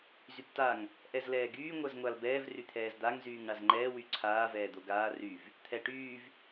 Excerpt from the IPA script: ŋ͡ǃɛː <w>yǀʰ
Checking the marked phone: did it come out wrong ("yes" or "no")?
no